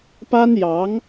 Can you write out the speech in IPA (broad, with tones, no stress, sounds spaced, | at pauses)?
p a˥ n j ɑ˧˥ ŋ